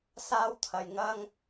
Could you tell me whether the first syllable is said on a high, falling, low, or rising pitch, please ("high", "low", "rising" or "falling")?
high